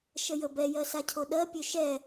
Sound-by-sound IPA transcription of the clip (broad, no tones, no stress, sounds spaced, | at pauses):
ʃ ə j ə b ɛ j ɜ s a cʰ o ɗ ɜ pʲ ø ʃ ɛ